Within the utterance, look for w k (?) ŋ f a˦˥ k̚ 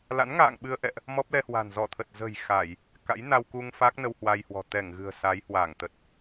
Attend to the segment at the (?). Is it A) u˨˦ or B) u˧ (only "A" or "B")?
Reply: B